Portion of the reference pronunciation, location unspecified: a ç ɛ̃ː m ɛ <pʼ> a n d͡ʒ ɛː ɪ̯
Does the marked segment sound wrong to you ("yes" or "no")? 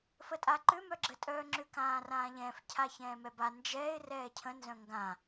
yes